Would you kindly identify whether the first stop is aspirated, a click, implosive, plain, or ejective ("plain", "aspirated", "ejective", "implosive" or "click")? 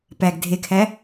plain